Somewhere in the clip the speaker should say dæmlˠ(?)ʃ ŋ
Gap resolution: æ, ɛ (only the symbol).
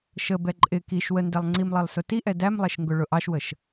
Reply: ɛ